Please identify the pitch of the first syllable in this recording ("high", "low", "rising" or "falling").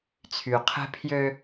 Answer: low